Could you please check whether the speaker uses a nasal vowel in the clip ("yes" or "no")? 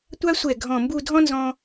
yes